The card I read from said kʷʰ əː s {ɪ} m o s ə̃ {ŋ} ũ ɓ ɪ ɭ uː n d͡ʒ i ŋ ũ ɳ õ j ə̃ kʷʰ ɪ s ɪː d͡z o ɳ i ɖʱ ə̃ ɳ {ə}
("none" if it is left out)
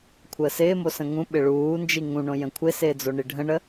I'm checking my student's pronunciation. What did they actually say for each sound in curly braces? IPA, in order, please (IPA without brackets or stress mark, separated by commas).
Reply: ɪː, ŋ, ə